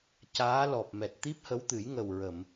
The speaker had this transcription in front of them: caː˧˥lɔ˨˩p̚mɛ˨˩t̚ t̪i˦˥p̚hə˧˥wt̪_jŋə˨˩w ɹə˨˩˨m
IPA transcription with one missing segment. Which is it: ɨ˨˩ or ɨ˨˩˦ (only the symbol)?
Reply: ɨ˨˩˦